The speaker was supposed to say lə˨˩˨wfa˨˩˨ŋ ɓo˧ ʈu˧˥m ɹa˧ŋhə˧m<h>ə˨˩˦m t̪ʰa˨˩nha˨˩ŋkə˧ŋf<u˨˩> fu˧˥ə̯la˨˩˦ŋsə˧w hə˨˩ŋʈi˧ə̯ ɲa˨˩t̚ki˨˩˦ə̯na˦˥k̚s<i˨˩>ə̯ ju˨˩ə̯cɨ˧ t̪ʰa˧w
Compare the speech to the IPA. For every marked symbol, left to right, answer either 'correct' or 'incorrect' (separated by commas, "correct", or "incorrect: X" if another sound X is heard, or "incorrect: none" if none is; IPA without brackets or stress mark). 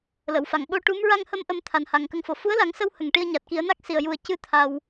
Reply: incorrect: ʔ, incorrect: o˨˩, correct